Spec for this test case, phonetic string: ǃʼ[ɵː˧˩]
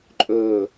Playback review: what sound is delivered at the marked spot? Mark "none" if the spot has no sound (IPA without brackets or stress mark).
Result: ɵː˧˩